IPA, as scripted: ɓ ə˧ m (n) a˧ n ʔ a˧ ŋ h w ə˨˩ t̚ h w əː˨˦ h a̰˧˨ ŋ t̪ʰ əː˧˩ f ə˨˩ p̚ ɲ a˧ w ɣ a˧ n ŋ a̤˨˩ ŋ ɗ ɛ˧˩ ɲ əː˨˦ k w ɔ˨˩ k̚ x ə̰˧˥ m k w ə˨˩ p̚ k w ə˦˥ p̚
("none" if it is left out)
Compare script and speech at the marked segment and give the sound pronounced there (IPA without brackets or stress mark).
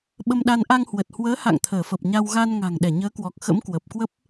ɗ